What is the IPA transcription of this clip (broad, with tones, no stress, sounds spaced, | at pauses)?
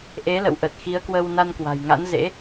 ʔ e˨˦ l ə̰˧˨ w ʔ ə˨˩ t̚ x i˨˦ ə̯ k w ə˧ w n a˧ n k w a̤˨˩ j ŋ a̰˧˥ n z ḛ˧˥